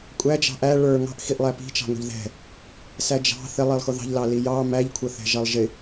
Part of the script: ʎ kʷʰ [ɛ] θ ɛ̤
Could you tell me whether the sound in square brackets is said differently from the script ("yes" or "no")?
yes